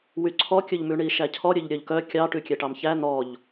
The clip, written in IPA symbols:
wyǀʰɔkʲɵʎmʉ ɳiʃæcʰɔɾʲøʎ ɾʲœʎkœ kʲɑ ʈʉkʲɛʈɑmçæ n̪ɔʎ

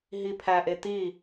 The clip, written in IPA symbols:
ɦipʰæʔe t̪i

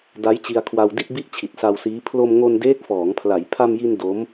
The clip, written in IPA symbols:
da˦˥jt͡ɕi˧a̯kʰwa˧wdi˥˩t̚ bi˥˩ʔt͡ɕʰi˨˩t̚sa˧wsiː˦˥ pʰlo˧mŋo˧n deː˦˥k̚fɔː˩˦ŋpʰla˩˦j pʰa˧mji˧n do˦˥m

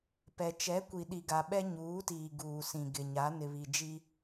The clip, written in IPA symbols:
pɛ˨ t͡ʃɛ˨˦kʷi˨ ɗi˨ɡa˨ɓɛ˦ ɲuː˨˦tiː˨ ɡuː˨sĩ˨ ɡɪ˨ɲa˨˦ nɪ˨βi˨d͡ʒi˦

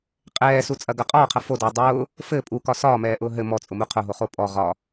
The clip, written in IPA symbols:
qʼɛːsut͡sʼɐɡɐ qʼɒːqʰɐ fodʊː dˤʊː | fɘ pʼukɒ sɒːmɛːʔʊː ɦɘ mɔt͡sʼʊmu qʰʊɦoχo pʼɔ ʁɒ

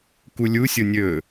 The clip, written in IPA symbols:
kulʲusʲo nʲɵ

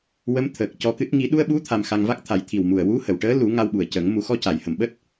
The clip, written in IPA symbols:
wə˧˥mt̪ʰəː˨˩k̚cɔ˧kɨ˦˥t̚ ŋi˨˩˦ɗu˧ə̯ɓu˧˥ t̪ʰa˧mxa˧ŋ va˦˥k̚t̪ʰa˨˩˦jt̪ʰi˨˩wmu˨˩ə̯ wu˧˥hə˨˩˨wʈəː˧˥ lu˨˩˦ ŋa˧wɓu˨˩ə̯cə˨˩˦ŋ mu˨˩˦xɔ˧ca˨˩˨jhə˨˩˨m ɓəː˦˥t̚

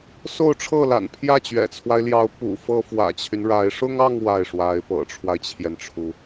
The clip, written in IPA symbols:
so˥˧ʊ̯ʈ͡ʂʰɤ˥˩la̰˨˩n pʰjä˥˩t͡ɕɥɛ̰˨˩t͡sʰwa˦ɪ̯ljɑ˧˥ʊ̯ pṵ˨˩fɤ˥ fwä̰˨˩t͡ɕʰy˦nɻa˧˥ɪ̯ ʂʊ˥ŋɑ˥˧ŋ wa˥˩ɪ̯ʂwa˧˥ɪ̯ pɤ̰˨˩ʈ͡ʂʰwa˦ɪ̯t͡ɕʰjɛ˩nʈ͡ʂʰu˩

